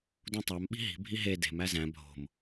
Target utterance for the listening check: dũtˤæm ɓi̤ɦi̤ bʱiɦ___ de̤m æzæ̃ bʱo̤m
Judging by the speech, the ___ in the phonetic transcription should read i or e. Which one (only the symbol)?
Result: e